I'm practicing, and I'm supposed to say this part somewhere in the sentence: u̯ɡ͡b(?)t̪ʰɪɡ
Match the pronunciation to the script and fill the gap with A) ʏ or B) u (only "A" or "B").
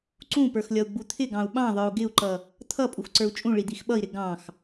B